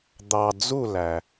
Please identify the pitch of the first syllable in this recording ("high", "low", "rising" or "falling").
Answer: low